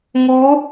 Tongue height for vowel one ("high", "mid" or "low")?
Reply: high